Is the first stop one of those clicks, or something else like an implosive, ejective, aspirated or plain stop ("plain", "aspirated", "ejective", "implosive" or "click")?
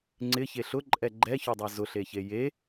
click